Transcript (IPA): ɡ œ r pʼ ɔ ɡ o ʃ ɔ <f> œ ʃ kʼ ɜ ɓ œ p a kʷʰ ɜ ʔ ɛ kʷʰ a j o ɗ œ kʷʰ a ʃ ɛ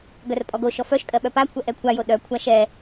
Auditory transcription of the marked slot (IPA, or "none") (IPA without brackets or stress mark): f